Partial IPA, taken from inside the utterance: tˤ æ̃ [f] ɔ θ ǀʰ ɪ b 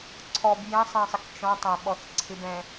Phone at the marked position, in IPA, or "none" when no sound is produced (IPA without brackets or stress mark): ɓ